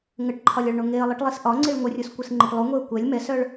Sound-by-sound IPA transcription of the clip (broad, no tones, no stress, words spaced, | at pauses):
ŋəʈǃʰɒlʲɒɭɳo ŋeə̯lˠɯʈlˠis ʔɒŋ͡ǀiɭ ŋʷərʲoskʷɨsŋ͡ǃɨʈ lˠuŋʷeə̯ kʷɛlʲ mɛsœɭ